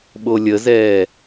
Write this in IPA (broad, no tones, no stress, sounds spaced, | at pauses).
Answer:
ɓ o lʲ ə z ɛː